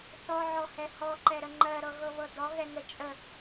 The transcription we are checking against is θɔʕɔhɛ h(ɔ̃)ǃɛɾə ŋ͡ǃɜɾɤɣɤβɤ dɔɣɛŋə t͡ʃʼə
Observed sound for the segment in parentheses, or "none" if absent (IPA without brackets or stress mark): ɔ